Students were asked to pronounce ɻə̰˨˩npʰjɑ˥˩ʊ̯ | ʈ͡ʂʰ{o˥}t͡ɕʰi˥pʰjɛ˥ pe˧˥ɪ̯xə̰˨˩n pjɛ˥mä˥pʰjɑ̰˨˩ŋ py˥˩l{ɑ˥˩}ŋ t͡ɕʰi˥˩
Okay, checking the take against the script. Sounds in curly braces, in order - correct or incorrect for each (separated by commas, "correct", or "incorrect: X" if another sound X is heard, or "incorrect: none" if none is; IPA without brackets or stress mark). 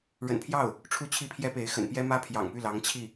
incorrect: u˥, incorrect: ɑ˧˥